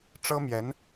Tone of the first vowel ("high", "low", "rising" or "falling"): high